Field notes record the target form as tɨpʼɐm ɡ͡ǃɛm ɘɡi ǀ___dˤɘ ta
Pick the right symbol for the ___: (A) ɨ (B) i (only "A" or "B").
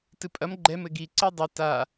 B